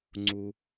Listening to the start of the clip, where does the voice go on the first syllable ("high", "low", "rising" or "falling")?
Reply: low